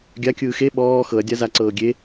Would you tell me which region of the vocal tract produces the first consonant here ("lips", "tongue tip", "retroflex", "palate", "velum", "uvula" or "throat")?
velum